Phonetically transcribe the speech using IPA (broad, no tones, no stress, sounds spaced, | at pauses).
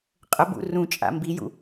qʼ ə b ṵ r ũ t͡ʃʼ a̰ m b i j ṵ